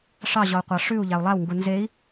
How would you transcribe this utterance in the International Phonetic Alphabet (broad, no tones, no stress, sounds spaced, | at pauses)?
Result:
ʂ ɑ ʑ ɔ u̯ qʷ ɑ ʂ ʉ u̯ ʎ a u̯ lˠ a w ŋ ɡ u n z e i̯